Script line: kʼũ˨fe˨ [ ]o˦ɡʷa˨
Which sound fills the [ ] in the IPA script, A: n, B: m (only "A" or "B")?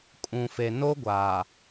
A